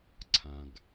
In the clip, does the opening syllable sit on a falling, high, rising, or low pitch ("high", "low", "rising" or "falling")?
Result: low